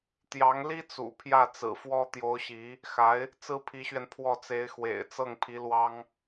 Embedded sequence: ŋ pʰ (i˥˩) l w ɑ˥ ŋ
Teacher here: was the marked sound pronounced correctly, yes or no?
no